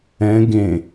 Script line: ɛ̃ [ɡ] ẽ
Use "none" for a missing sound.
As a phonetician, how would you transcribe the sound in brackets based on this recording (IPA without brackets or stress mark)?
ɡ